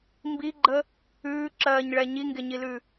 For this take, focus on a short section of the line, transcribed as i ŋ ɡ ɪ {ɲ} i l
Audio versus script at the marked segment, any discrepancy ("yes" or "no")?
no